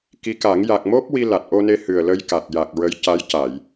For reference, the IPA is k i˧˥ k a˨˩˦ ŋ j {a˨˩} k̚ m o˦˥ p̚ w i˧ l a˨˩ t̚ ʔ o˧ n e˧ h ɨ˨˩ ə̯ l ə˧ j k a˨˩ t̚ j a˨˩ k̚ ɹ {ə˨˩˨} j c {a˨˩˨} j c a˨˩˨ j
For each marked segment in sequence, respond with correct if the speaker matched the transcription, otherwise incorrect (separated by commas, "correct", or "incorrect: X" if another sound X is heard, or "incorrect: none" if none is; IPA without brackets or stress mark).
correct, incorrect: ə˧˥, incorrect: a˧˥